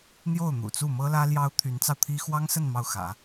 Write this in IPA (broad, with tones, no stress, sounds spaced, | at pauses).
n̪ j o˥˩ ʊ̯ n̪ ṵ˨˩ t͡s u˥˩ m ɤ˥ l ä˥ l j ɑ˥ ʊ̯ t̪ʰ y˧˥ n t͡s ɑ˧ ʊ̯ t̪ʰ i˥ x w ɑ˥ ŋ s ə˥˧ n m ɑ˥˩ ʊ̯ x ä̰˨˩˦